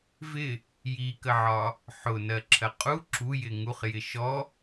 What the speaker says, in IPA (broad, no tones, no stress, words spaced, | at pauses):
vɪ | jikəʕɒ | ħʊnɜǁʰɜ qʼu ǁujɪ ŋuχjɪ ʃɔ